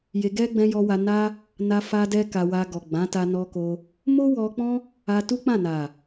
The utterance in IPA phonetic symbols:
j e˧ ɡ ɛ˦ ɡ͡b ɛ̃˧ j ɔ˧ w a˧ n a˦ | n a˧ f a˧ d ɛ˧ k a˧ w a˧ ɡ ɔ˨ ɡ͡b ã˨˦ t a˧ n ɔ˧ k o˧ | m o˦ w ɔ˧ k͡p ɔ̃˦ | a˧ t u˦ k͡p ã˦˨ n a˨

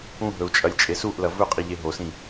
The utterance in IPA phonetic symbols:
ũ ɦ ɵ u̯ t͡ʃʼ ɐ lʲ t͡ʃʼ e s u ʔ l ɐ v ɵ qʼ i ʎ e ɦ o s ĩ

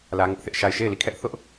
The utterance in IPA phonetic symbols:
l ä˦ ŋ ʊ˦ ʔ θ ɪ˦ ʔ ʃ a˦˨ ɪ̯ ʃ e˦˨ ɪ̯ l i˦˨ kʰ ɛ˦ ʔ θ ʊ˦ ʔ

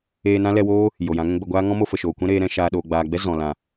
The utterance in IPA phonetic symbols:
eː˧ n ã˦ l ɛ˧ w oː˦ | j o˨ j ã˨˦ ŋ ɛ̃˦ ɡ͡b ə˧ ɡʷ aː˦ ŋ ɔ̃˦ m o˧ f ə˨ ʃ oː˨ kʷ ɛ̃˦ ɾ eː˧ ɾ ɛ̃˦ ʃ aː˧ ɗ oː˨ ɡ͡b aː˨ ɡ͡b ɛ˦ z ɔ̃˨ l ã˨

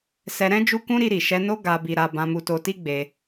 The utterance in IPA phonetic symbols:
s ɛ˧ ɾ ɛ̃˦ d͡ʒ u˦ k ũ˦ ɾ i˧ ɾ i˨ ʃ ɛ˧ n o˦ ɡ a˧ b i˧ ɾ a˧ b ã˧ m u˧ t o˧ t i˦ ɡ͡b e˧

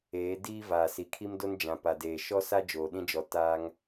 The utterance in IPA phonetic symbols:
eː˨˦ d iː˦ v aː˨ s i˨ kʰ i˦ m d o˦ n d͡ʒ ã˨ p a˨ d eː˨ ʃ ɔ˦ s a˦ d͡ʒ oː˨ ɗ ĩ˦ d͡ʒ ɔ˨ t aː˦ ŋ

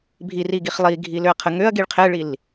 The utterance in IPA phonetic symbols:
bʱ i r i ɡ i χ lˠ i ɡʱ i l ø ɐ̯ qʰ ə ŋ ø ɐ̯ ɡ i ɭ qʰ ɛ ɭ i l

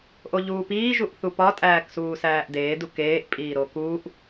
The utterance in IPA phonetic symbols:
ʔ o ʎ uː p iː ʒ u ʔ θ u p ɒ tʼ æː k s uː s æː ʔ d eː d u k eː ʔ pʼ iː ɾ o k uː ʔ

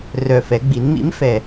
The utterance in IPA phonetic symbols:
r œ˨˩ f ɛ˩˧ ɡ͡b i˩˧ n m ḭ˨˥ m f ɛ˨˩

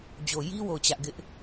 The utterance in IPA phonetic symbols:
d͡ʑ o˨ j i˦ w o˦˨ ʊ̯ t͡ɕ ä˦ ʔ ɡ ɪ˦ ʔ

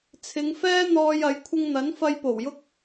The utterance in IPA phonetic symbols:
t͡sʰ ɪ˨˧ ŋ f ɛː˥ n̪ ɔː˧ j ɐ˨˥ j kʷʰ ɪ˥ ŋ n̪ ɐ˨˥ n f ɐ˧ j p o˨˩ w j ʊ˥ k̚

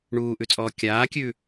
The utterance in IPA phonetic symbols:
ɳ uː ʔ ʉ t͡sʼ ɔː kʲ aː kʲ ʉː

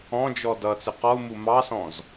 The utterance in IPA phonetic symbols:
ɔ̃ d͡ʒ ɔ d ʌ t͡s ɪ q ɔ u̯ m u m ɑ s ɔ̃ z

